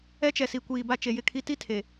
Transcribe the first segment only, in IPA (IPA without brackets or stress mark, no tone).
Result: ɛ